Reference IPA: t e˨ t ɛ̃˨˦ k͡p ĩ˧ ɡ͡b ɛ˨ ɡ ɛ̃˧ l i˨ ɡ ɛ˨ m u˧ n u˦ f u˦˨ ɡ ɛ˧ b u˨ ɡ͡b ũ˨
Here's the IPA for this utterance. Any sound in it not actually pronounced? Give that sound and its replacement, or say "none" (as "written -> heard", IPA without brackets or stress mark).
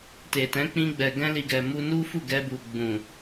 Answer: none